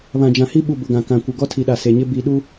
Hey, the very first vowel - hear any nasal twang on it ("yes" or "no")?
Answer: yes